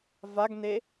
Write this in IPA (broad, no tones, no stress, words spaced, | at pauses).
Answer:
vaɡne